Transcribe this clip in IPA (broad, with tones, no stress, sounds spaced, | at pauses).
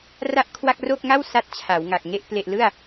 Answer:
r a˥˩ ʔ kʰ w a˥˩ k̚ r o˥˩ k̚ ŋ a˥˩ w s a˥˩ t̚ t͡ɕʰ a˩˦ w ŋ a˨˩ k̚ ŋ e˥˩ ʔ p l e˨˩ ʔ l ɯ˥˩ a̯